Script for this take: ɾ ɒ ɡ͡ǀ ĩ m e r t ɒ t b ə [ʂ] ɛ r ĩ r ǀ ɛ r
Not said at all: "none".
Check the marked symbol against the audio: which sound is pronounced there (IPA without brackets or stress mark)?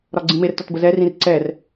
z